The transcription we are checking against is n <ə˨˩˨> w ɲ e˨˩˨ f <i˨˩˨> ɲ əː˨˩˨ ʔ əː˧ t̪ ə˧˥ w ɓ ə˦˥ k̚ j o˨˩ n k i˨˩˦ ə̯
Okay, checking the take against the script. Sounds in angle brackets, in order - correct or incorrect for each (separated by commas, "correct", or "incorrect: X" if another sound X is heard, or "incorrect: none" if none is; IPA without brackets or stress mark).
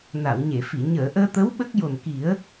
incorrect: a˨˩˨, correct